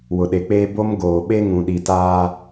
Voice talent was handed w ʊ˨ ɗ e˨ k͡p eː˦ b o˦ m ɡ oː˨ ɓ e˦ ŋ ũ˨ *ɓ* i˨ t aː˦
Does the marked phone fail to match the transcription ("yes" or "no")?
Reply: yes